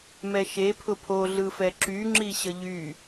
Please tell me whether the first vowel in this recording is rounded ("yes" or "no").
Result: no